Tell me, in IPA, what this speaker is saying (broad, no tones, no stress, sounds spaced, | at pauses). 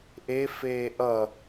ʔ e f eː ʔ ʌ